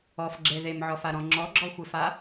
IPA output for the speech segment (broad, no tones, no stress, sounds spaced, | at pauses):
ɔ f ɡ͡ǁ e ð e m ʕ ɔ f a ɾ ɔ̃ ŋ͡ǁ ɔ ɡ͡ǁ ɔ xʷ e f a